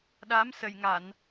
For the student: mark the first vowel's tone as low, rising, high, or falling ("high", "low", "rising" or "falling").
rising